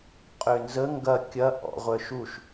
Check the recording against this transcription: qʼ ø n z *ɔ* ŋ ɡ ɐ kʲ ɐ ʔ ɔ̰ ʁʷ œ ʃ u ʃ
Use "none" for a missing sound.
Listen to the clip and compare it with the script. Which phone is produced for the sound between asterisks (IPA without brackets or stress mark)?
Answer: ə